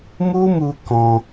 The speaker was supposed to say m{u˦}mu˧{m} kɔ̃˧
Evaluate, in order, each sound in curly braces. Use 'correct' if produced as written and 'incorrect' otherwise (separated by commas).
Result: correct, incorrect